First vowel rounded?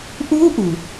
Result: yes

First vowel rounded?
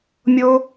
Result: yes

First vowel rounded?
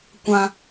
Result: no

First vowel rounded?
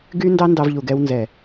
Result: yes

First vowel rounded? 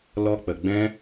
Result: yes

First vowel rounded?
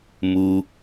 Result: yes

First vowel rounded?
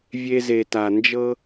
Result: no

